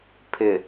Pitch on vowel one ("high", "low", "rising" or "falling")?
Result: low